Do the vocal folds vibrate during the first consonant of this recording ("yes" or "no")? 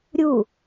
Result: yes